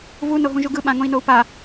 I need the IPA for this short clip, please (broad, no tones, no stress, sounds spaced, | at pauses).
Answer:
v u n o ɦ ũ ʒ u ɡ ɯ ɓ ã ŋ õ i̯ n o u̯ p a